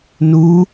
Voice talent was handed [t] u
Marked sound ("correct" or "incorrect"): incorrect